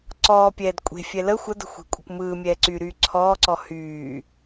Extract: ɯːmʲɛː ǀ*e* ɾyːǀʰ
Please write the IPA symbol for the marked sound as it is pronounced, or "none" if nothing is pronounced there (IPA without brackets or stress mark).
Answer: y